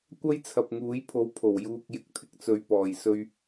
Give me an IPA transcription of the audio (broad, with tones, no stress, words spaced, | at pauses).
kʷɐ˥jt͡sʰɐ˨p̚ ŋuː˨˥jpʰo˨˥w pʰo˨˩wjuː˨k̚jɪ˨k̚t̪ʰɪ˨k̚ t͡sɵ˨ɥpɔː˨˩jsɵ˧ɥ